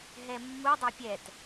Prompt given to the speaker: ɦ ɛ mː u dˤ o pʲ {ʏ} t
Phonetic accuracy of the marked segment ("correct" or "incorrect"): incorrect